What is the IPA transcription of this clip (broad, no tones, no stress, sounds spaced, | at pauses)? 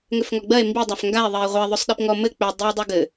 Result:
ŋ ʏ f ŋ ɔ ɡ͡b ɜ e̯ m b i dˤ a f ŋ ɡ a e̯ ðˤ ɜ e̯ ʁʷ ɜ ðˤ ɵ sˤ ɗ i p ŋ ɔ m ɘ k͡p ʏ dˤ i w dˤ u ɡ ɘ